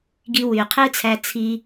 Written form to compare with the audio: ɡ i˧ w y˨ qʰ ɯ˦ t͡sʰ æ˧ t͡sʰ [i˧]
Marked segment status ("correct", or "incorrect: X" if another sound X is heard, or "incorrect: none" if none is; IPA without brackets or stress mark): correct